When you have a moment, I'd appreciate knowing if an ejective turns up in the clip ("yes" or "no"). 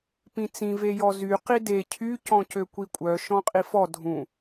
yes